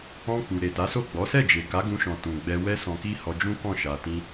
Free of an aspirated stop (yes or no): yes